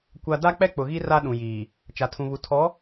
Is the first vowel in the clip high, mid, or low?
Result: low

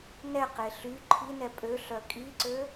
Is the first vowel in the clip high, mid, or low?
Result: mid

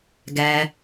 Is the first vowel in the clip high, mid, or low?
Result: mid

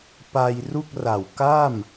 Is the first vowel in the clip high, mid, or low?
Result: low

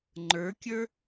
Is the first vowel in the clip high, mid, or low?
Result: mid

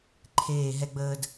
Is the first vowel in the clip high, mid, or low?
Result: mid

